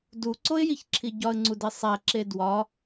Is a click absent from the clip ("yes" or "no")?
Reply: no